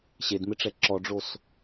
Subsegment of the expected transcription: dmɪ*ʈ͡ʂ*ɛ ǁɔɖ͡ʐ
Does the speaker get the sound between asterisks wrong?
no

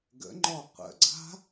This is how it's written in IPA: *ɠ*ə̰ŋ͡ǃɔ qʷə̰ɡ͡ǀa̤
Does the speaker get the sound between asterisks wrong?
yes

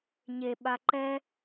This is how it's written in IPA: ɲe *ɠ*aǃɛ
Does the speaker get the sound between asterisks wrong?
yes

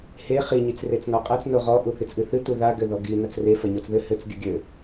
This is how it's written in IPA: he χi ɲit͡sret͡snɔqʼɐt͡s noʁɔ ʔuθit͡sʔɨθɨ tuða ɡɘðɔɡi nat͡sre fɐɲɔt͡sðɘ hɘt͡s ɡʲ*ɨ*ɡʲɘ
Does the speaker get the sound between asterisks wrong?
no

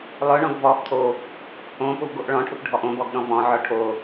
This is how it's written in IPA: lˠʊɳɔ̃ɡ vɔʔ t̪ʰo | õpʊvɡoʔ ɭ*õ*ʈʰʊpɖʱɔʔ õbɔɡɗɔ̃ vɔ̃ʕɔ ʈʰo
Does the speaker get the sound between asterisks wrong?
yes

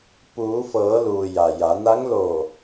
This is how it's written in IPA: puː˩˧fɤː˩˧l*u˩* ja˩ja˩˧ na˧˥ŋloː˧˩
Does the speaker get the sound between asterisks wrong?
yes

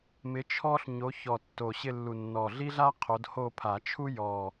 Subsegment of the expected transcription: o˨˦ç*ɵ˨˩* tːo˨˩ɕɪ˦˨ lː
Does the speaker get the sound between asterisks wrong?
yes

